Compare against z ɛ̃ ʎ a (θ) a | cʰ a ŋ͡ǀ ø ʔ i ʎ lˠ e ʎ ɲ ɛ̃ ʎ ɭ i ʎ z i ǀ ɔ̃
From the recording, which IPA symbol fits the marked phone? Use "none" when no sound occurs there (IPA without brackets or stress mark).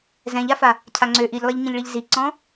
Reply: f